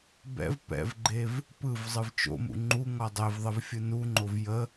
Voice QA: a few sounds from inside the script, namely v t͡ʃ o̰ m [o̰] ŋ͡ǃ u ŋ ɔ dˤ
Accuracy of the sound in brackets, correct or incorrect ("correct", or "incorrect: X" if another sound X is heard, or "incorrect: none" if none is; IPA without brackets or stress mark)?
incorrect: ṵ